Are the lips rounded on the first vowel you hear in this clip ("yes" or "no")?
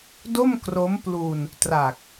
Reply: yes